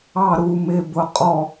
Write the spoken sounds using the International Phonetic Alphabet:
ɑ ɾ u m ɪ b ʊ qʼ ɔ

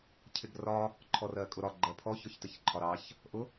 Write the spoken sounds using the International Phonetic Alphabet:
cʰ ɪ ɡ r ɒ | ǃʰ ɔ r ɜ kʼ ʊ ɾ ɒ ɡ͡ǃ ɜ pʰ ɔ ç ɔ ç t ə ç ǃʰ ɒ ɾ ɑ ç | ʔ ʊ

